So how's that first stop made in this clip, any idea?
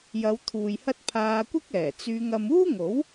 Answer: aspirated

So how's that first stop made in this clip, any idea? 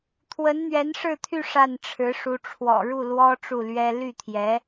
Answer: aspirated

